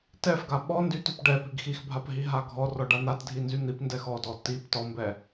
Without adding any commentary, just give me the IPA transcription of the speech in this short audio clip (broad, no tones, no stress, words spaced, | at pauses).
tɛfɡa ɓɔ ndytyp ɖɛ piɡxixbʱap ɦiɦaɡʱɔrɔ ɖan̪atdʱi nzyn̪ipndɛx ɔdɔ tib tɔmbɛ